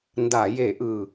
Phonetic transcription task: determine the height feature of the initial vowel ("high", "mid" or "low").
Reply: low